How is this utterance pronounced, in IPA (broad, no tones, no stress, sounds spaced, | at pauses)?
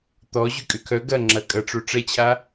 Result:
t̪ ɔ ʑ y kʼ ʏ kʰ œ ɡ ɐ ŋ͡ǁ ɐ kʼ ɐ ʈ͡ʂ o ʈ͡ʂ ɛ t͡ɕʰ a